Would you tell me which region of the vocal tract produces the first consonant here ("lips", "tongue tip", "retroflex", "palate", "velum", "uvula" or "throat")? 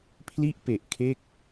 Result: lips